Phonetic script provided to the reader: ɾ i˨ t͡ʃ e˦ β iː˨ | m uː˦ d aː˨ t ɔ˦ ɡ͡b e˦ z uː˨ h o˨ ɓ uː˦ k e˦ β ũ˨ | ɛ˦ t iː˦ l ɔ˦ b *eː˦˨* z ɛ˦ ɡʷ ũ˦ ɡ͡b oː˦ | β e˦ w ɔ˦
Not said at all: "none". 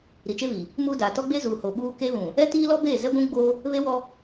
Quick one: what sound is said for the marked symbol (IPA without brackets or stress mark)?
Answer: eː˦˨